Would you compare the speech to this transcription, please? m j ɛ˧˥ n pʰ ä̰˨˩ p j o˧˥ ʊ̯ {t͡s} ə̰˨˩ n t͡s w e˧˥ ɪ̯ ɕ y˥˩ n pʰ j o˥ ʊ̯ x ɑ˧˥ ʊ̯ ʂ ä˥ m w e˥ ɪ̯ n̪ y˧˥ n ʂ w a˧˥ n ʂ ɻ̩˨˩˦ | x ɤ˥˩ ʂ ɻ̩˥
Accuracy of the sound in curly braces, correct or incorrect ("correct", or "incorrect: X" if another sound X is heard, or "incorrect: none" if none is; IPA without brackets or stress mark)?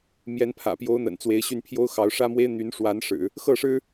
incorrect: n̪